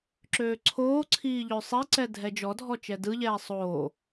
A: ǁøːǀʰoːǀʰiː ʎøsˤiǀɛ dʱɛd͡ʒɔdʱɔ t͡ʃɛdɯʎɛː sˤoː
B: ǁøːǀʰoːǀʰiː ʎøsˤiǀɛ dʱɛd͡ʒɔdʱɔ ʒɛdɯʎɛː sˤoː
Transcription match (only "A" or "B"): A